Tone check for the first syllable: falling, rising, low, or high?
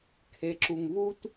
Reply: low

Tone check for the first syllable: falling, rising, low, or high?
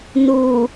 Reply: low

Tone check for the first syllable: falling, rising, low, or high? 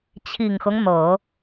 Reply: low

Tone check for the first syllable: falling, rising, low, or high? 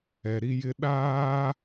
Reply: low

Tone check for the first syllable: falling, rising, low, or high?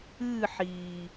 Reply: falling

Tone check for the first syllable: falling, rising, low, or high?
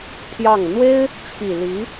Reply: falling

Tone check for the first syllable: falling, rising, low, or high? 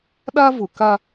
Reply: high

